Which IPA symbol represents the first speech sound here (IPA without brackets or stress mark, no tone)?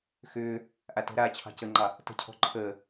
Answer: x